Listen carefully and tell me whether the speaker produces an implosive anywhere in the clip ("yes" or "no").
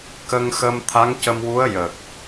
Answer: no